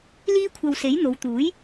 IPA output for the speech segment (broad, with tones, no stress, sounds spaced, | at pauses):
l iː˥ kʷʰ ɐ˧ w s e˨˥ j n̪ o˨˧ w t̪ uː˨˥ j